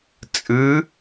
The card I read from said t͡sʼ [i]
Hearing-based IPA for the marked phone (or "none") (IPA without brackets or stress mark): ɨ